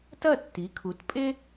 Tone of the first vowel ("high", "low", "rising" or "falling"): falling